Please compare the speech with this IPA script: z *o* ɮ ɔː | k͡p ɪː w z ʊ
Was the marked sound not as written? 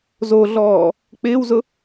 no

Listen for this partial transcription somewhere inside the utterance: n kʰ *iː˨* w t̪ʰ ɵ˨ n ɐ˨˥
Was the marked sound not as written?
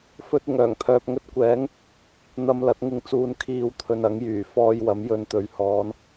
no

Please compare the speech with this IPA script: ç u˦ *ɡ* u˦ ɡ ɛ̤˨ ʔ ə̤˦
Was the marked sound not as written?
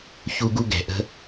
no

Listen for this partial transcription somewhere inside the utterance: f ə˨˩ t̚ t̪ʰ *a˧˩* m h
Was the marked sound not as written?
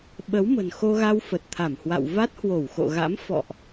no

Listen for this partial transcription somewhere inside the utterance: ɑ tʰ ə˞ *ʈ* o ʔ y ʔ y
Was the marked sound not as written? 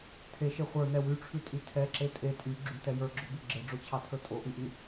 yes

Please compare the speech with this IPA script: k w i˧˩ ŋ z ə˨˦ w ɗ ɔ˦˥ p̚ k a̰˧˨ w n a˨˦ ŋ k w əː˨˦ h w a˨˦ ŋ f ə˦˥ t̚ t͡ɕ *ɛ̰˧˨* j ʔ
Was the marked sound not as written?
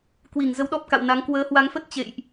yes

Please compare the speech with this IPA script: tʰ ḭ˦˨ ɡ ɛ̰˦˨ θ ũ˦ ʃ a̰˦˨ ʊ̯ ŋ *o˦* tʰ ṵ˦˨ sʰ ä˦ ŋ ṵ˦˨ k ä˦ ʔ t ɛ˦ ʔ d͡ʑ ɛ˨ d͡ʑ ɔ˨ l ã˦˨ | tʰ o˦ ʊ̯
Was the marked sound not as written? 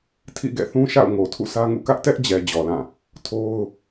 yes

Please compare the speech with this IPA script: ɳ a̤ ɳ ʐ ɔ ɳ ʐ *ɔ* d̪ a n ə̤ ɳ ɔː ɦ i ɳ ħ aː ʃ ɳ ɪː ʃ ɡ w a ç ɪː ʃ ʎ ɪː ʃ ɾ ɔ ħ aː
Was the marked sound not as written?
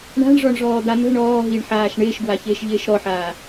yes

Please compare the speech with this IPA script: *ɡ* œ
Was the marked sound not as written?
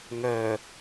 yes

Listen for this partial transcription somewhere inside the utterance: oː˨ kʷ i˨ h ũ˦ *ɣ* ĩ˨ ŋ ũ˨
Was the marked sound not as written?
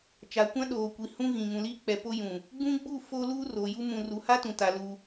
no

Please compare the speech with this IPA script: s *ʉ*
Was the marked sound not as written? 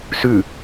no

